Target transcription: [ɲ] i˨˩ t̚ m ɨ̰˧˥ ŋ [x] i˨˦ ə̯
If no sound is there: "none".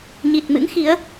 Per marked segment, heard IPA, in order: ɲ, x

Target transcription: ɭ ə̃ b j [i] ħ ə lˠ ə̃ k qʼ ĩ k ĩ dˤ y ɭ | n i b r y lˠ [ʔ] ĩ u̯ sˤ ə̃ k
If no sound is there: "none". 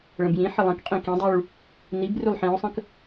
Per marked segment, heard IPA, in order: ĩ, ħ

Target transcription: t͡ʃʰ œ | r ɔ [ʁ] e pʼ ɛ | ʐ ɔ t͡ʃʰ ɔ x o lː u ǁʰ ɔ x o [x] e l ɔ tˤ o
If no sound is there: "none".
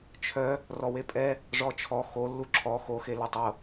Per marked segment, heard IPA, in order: w, x

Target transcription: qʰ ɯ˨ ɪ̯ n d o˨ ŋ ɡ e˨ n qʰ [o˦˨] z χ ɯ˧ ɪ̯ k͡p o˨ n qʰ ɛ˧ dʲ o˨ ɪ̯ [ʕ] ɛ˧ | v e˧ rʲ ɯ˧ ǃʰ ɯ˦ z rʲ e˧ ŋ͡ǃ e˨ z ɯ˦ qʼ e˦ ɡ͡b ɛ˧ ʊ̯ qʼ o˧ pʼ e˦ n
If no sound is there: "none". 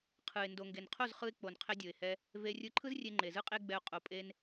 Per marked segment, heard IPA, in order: o˦˨, h

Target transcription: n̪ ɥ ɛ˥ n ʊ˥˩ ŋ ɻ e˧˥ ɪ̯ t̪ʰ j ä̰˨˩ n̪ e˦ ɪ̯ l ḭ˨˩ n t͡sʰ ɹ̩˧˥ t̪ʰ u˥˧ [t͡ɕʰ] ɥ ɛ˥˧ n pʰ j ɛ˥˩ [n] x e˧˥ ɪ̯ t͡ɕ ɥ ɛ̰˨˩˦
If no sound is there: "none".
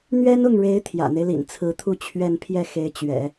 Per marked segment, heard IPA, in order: t͡ɕʰ, none

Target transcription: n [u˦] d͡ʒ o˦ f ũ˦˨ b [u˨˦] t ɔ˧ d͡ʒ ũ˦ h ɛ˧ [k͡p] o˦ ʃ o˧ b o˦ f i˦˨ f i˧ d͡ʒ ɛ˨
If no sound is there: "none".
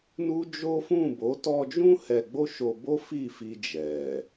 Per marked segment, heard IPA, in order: u˦, o˨˦, ɡ͡b

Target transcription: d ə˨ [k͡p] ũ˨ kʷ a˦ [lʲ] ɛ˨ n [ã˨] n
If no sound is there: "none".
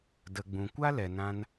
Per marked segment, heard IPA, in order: ɡ͡b, l, ã˧

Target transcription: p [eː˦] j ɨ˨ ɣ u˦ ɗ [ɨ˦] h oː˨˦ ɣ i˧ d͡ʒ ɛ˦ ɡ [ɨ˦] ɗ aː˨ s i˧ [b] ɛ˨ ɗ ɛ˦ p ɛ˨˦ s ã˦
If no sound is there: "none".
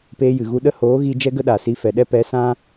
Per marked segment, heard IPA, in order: eː˦, ə˦, ə˦, f

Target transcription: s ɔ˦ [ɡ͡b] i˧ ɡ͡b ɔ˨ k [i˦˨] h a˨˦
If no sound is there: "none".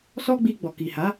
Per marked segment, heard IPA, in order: ɡ͡b, i˨

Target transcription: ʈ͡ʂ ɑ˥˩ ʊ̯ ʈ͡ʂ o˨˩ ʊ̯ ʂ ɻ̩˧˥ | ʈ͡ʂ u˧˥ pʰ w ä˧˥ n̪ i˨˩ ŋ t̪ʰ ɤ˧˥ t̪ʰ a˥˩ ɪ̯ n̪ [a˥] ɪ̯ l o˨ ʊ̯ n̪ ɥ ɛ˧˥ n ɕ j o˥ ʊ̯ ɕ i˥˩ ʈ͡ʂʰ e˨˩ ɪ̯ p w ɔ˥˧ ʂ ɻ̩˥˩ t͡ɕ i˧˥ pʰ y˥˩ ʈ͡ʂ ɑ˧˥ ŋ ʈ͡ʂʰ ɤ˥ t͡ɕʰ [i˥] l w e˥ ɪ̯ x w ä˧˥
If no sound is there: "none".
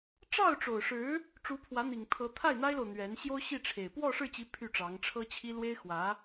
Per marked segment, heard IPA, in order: a˥, i˥

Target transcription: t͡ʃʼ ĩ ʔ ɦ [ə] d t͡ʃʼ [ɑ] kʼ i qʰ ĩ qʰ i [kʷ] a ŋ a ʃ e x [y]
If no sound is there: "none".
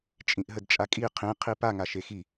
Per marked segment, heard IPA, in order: ə, a, p, i

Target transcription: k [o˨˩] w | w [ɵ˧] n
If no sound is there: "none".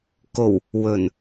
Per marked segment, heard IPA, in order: o˨˩, ɵ˨˩

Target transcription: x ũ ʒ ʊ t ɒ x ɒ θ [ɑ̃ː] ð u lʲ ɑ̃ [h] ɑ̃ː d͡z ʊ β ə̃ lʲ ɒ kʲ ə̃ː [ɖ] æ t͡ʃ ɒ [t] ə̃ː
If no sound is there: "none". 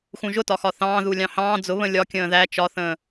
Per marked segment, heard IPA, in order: ɑ̃ː, h, ð, θ

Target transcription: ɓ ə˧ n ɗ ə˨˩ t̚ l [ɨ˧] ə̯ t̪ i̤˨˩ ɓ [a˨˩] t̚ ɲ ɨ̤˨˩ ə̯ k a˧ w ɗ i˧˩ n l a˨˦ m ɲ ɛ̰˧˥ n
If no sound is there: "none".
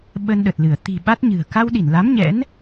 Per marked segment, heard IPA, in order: ɨ˧˩, a˦˥

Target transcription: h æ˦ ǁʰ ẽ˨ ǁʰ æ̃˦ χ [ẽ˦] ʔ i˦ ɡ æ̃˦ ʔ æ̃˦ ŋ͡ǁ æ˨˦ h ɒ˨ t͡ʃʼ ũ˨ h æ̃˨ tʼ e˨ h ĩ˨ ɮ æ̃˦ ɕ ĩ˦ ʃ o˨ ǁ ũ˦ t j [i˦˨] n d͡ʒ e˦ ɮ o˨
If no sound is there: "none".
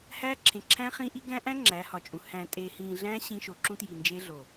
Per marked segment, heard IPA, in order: ĩ˦, i˨

